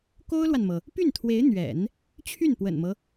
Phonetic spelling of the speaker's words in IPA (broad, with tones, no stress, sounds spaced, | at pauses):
k o˥ ʊ̯ l w a˨ n m ɤ˩ | p y˥˩ n t̪ʰ w e˧˥ ɪ̯ n̪ ɥ ɛ̰˨˩˦ n | t͡ɕʰ y˥˩ n p w ə̰˨˩ n m ɤ˦